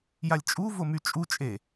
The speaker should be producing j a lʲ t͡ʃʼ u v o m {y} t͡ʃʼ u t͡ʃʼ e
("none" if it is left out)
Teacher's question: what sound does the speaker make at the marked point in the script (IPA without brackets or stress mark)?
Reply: y